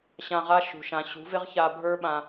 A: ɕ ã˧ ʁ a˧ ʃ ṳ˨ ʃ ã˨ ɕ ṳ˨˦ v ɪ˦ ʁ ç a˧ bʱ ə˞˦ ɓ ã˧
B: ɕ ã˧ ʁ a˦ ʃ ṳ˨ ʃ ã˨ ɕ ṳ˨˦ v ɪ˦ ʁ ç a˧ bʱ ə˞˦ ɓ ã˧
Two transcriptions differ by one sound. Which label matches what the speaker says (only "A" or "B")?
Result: B